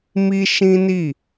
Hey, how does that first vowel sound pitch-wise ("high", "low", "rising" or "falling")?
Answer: high